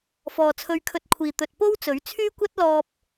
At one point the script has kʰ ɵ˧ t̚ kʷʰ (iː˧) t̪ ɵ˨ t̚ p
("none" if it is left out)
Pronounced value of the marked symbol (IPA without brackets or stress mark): iː˨